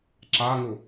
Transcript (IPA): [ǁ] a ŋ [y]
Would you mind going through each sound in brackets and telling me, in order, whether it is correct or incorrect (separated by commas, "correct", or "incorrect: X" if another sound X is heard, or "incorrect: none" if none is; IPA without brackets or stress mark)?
correct, incorrect: u